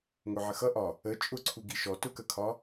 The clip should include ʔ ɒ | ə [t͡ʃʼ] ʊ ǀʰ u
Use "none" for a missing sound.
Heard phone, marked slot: t͡ʃʼ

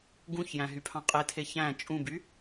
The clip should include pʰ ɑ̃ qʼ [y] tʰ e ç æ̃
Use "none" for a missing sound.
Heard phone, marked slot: e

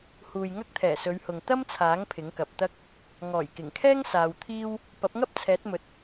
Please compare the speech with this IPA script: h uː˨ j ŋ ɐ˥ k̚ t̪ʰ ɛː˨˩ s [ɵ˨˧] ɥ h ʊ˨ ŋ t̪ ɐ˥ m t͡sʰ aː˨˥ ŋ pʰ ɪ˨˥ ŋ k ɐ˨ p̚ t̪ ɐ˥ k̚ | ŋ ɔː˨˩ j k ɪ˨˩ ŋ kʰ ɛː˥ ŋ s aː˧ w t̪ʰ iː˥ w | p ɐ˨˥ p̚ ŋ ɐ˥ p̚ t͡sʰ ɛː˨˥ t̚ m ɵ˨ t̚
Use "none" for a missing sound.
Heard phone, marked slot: ɵ˨˧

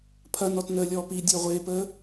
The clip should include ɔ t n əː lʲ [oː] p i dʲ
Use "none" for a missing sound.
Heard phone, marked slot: ɔː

